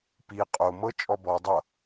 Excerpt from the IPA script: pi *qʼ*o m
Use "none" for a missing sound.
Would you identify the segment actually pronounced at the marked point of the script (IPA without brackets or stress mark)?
qʼ